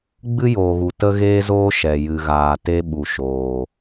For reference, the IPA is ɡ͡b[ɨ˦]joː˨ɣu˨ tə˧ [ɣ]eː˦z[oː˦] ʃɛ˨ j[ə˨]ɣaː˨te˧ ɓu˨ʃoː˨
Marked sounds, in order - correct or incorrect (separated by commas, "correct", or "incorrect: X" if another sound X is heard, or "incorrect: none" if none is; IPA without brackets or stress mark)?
correct, correct, correct, incorrect: ɨ˨